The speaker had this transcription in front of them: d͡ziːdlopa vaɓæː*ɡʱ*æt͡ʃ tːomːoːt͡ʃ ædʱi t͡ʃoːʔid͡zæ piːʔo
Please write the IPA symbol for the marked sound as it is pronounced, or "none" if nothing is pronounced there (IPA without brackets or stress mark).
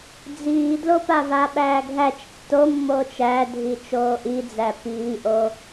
ɡʱ